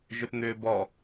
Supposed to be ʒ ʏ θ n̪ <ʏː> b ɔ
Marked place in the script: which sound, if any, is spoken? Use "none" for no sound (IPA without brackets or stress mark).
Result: ʏː